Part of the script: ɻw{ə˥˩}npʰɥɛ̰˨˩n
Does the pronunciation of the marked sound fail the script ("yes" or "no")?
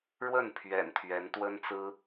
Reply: no